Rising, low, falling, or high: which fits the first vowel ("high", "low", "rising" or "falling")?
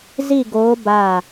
falling